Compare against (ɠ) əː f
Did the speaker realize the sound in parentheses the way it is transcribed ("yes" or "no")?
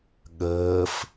yes